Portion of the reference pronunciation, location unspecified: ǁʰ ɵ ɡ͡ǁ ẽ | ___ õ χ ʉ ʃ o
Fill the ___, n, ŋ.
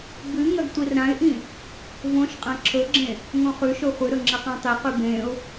ŋ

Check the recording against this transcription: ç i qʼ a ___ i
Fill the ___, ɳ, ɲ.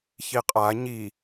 ɲ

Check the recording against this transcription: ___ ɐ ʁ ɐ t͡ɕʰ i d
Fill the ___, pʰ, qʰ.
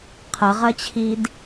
qʰ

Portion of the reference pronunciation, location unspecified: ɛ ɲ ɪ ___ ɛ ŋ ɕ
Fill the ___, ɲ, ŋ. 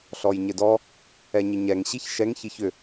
ɲ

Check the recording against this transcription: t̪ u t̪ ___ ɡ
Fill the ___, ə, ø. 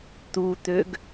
ø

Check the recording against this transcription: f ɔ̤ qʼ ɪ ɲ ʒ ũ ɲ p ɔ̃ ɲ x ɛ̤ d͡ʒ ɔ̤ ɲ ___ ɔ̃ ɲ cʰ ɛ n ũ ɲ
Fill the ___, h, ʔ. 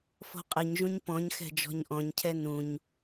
ʔ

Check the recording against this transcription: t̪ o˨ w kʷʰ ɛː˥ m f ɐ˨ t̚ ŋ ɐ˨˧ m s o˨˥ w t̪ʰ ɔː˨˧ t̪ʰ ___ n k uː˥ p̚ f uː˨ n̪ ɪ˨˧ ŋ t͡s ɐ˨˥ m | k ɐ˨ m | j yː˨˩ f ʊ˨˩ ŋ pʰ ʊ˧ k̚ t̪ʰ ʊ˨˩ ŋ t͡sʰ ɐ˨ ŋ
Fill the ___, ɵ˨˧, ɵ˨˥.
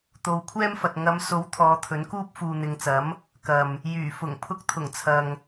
ɵ˨˥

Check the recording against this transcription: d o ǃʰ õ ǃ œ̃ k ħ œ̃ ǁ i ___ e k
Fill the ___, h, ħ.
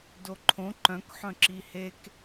h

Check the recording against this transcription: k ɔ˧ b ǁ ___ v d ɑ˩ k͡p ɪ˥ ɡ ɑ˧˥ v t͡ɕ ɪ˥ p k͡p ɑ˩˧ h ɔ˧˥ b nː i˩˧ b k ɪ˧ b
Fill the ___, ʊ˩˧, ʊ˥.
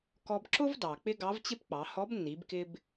ʊ˥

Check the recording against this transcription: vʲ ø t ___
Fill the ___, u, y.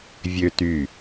y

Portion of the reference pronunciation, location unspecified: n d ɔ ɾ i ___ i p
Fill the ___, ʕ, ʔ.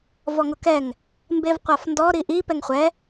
ʔ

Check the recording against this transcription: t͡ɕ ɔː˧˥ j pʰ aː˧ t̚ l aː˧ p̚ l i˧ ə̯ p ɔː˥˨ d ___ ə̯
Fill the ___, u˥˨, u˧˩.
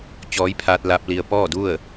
u˥˨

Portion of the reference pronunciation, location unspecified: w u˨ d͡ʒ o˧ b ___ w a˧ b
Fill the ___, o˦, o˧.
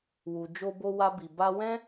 o˧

